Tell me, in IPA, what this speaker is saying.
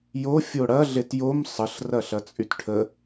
j o fʲ o ɽ ɐ ɮ e t j o m sˤ ə ɬ r ɐ ɬ ɐ t͡sʼ y t ʈʰ ə

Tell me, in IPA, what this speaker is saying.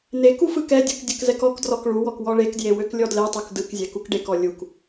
n e k u f ɯ k ɛ dʲ ɯ k dʲ ə k z ɛ k ɔ k d r ɔ k ɭ u w ɔ k w ɔ ɭ e k d j e w ø k lʲ ɔ d l e tˤ u k d ɯ k zʲ ɛ k u k ɖ e k ɔ lʲ u k

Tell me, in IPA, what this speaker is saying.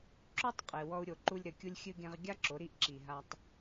ǁ o˦ tˤ qʼ e˨ w ɔ˧ u̯ ɾʲ o˨ ǃ u˧ lʲ ɾ ɘ˨ kʲ u˧ lʲ xʲ ɨ˧ ɡ ẽ˧ ʁ ɡʲ a˦ ǁ o˨˦ ɾ i˦ ʔ ǁ i˨ ɦ a˧ tˤ

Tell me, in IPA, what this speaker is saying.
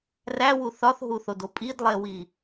r æ w u θ ɒ θ ɦ u θ o d o pʼ i d lˠ e w i

